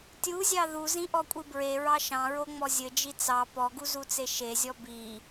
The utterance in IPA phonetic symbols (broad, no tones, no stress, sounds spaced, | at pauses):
tʲ u zʲ ɑ ð u z ĩ ʔ ɔ kʷʼ i b ɹ e ɹ ɑ ʃ ɑ̃ ɹ o ŋ͡m ɔ zʲ ɘ d͡ʒ i t͡s ɑ p ɔ ɡ u z u t͡s e ʃ e zʲ ɔ b i